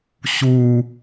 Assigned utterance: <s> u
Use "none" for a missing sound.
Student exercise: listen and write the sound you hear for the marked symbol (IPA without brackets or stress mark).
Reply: ɕ